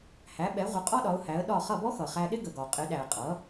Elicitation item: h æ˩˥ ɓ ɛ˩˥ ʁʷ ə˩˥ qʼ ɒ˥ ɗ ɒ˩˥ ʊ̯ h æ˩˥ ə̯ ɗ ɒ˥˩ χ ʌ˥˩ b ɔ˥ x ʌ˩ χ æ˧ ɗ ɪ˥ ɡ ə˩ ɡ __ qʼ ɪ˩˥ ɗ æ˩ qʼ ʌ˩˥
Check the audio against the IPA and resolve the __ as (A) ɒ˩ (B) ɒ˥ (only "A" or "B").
A